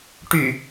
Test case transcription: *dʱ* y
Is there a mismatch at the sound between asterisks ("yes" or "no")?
yes